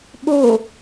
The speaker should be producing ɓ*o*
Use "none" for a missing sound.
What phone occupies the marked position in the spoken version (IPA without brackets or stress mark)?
o